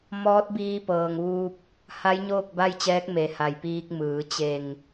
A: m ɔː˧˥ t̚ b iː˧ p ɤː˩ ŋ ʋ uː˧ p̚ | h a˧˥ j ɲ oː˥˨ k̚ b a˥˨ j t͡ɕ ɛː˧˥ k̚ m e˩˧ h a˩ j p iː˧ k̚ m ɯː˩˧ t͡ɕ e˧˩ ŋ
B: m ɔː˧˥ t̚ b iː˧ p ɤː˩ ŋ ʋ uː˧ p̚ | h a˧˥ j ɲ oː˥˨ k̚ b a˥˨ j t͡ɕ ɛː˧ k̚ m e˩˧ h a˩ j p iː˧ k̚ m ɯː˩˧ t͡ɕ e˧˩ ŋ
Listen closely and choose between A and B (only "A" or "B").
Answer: A